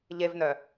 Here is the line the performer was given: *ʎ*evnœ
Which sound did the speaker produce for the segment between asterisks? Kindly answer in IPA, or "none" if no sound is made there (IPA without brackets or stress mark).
ʎ